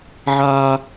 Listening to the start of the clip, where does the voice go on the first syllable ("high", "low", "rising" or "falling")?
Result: high